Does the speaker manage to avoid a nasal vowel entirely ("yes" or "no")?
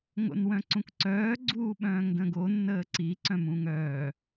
no